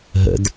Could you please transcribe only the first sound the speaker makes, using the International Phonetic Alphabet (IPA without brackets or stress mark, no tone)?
ɦ